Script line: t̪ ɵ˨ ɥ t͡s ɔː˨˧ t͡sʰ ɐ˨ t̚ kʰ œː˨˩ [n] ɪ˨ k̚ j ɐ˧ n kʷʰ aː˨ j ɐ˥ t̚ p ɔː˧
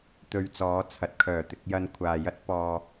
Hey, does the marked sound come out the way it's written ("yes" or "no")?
no